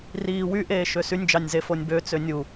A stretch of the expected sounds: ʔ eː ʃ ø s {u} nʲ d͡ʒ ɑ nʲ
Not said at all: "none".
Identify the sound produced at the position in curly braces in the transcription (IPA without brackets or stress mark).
y